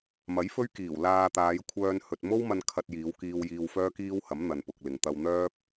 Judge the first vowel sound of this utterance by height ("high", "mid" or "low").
low